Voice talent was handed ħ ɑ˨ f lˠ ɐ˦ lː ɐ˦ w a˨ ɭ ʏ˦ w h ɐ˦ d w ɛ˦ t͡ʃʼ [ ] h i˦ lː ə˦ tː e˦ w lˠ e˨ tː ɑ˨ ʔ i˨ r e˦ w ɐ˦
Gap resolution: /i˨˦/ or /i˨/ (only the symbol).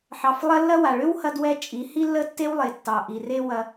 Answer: i˨˦